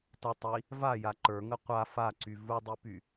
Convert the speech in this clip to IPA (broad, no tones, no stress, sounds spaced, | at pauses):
t ə tˤ i | v a j a ǃ ə˞ ŋ ə qʷ a f a ǀ y v u dˤ i p y